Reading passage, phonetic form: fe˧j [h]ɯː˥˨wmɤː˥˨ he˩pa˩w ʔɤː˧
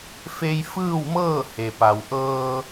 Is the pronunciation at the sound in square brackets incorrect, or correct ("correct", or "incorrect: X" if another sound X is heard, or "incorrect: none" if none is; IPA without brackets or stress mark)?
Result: incorrect: f